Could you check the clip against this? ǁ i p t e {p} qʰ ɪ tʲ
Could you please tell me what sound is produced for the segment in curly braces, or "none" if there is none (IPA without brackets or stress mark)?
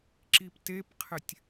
p